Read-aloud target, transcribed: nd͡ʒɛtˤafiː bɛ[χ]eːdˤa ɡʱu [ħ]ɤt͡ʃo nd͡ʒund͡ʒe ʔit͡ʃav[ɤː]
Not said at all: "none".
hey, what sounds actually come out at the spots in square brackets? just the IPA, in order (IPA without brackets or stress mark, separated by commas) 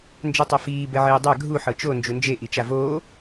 ʕ, ħ, oː